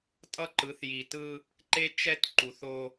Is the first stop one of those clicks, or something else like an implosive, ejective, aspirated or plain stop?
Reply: ejective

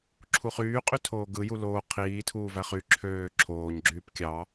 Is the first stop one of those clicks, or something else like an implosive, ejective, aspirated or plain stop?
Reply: click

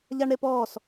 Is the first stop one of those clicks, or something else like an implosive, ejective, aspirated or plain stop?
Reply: plain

